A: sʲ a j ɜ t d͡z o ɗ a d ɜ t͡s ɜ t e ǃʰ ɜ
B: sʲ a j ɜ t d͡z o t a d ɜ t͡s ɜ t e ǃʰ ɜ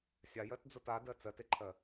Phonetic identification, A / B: B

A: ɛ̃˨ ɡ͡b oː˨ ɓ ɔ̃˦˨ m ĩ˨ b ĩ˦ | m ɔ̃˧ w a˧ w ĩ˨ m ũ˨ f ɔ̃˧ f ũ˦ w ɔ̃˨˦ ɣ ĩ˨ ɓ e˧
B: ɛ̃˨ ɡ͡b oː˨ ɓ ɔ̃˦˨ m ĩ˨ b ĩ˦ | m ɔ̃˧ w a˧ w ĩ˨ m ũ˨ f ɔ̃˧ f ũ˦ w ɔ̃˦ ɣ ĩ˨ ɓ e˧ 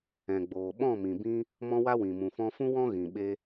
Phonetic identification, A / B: B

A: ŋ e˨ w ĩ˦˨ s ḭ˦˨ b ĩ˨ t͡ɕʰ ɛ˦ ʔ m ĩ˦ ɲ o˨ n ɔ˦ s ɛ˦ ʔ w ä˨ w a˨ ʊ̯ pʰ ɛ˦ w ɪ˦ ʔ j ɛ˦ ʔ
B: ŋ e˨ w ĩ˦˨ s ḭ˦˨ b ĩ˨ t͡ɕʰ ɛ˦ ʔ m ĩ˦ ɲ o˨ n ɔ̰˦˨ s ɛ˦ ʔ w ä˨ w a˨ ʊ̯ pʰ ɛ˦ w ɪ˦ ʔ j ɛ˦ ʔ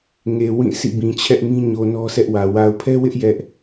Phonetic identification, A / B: A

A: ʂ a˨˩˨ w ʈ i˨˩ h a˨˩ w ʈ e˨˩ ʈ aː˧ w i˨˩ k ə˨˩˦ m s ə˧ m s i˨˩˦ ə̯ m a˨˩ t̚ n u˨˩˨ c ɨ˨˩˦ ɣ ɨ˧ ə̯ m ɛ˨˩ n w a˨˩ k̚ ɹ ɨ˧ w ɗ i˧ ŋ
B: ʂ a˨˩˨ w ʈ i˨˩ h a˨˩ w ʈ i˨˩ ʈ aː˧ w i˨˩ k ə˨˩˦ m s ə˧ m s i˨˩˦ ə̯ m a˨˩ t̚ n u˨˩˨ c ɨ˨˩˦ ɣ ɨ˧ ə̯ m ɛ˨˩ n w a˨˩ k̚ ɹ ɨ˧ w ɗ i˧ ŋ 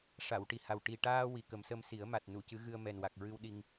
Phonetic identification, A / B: B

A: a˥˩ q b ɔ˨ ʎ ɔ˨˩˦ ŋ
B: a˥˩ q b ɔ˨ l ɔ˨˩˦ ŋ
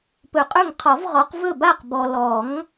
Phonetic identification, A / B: B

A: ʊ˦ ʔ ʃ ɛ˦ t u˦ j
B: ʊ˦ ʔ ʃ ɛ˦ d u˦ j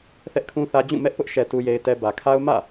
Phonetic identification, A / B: A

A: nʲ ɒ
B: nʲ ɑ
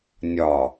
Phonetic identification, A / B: A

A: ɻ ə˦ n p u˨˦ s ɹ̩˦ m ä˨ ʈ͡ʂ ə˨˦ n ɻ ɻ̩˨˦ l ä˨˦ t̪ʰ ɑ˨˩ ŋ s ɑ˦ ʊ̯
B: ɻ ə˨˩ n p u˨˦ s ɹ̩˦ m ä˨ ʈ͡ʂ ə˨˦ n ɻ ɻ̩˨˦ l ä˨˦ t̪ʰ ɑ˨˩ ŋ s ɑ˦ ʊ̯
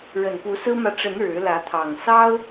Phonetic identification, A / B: B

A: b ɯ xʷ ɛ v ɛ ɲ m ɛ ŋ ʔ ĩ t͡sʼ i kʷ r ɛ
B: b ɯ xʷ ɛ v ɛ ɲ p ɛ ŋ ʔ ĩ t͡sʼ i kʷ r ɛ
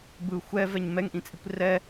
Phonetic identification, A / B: A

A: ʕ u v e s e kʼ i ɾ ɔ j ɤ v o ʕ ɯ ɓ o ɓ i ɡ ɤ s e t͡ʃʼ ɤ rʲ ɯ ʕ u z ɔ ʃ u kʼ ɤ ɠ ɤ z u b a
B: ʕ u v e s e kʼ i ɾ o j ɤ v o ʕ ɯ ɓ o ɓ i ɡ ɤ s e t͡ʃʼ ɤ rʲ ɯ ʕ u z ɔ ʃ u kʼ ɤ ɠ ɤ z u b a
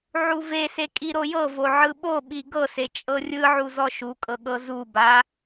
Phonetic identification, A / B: B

